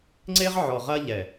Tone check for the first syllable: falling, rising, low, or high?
high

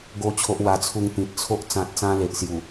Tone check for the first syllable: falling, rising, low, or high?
high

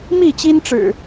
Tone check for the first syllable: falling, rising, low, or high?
falling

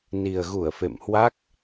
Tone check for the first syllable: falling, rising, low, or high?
low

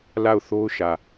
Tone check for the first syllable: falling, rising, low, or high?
falling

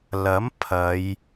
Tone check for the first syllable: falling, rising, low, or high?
rising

